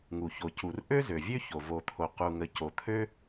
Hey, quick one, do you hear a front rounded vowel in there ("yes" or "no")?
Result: yes